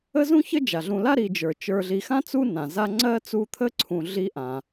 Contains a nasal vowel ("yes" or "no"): yes